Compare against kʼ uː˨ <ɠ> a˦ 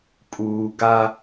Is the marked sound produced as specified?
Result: no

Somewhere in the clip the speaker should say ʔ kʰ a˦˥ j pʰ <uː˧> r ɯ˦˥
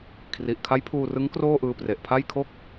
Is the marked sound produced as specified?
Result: yes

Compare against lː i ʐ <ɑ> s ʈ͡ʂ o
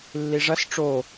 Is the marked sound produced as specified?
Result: no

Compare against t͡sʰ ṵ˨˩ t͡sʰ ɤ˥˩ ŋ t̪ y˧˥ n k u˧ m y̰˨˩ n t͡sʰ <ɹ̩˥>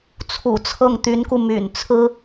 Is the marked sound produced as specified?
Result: yes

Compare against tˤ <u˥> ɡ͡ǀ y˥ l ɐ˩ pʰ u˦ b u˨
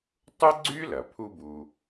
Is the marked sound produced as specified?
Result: no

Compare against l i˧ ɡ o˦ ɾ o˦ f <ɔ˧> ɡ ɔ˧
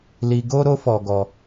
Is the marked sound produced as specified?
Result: yes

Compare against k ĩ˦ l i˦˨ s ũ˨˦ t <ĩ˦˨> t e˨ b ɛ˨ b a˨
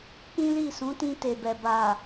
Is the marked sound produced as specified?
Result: no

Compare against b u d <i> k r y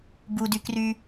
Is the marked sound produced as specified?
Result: no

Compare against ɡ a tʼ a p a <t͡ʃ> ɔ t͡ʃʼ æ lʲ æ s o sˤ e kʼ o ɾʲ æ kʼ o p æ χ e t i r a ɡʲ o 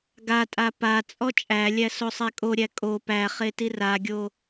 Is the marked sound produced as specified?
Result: no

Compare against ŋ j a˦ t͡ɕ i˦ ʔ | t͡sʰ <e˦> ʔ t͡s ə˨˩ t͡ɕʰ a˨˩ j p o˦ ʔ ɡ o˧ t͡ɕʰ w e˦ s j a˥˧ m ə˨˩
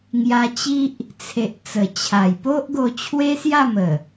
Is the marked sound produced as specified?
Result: no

